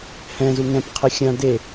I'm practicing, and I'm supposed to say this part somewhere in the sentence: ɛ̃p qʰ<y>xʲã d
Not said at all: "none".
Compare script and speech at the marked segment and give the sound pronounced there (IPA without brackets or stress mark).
e